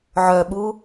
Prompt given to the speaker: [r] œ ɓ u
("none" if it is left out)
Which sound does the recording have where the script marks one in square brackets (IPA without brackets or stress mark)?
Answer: ʕ